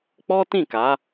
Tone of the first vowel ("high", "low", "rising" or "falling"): high